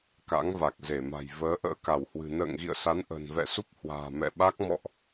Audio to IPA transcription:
ka̰˧˥ŋva˨˩k̚ze˧˩ma̤˨˩j vəː˨˦ʔə̰ː˧˥ka˧˩whwɨ̤˨˩ nə̰ː˧˨ŋɣḭ˧˨ə̯sa˨˦n ʔə̤˨˩nvɛ̰˧˨su˦˥p̚hwa̤ː˨˩ mɛ̰˧˨ ɓa˦˥k̚ mɔ̰˧˨ʔ

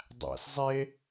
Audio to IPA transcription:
dˤæ̰s zˤe

